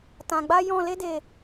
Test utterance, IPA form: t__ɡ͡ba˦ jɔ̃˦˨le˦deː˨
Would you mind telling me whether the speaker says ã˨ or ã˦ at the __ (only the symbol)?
ã˨